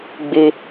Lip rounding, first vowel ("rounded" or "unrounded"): unrounded